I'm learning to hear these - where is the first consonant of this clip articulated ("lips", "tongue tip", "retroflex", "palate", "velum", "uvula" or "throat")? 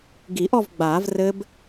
velum